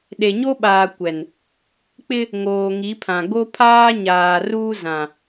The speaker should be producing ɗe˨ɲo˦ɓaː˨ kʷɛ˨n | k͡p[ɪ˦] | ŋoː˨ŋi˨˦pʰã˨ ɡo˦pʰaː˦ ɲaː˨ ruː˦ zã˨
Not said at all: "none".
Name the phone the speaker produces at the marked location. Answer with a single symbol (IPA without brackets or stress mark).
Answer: ɪ˦